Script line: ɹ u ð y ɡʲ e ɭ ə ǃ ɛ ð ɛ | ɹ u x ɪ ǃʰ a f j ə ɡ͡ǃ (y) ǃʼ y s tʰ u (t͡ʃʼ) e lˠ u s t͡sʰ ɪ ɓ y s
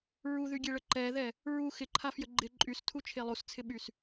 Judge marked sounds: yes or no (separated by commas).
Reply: no, no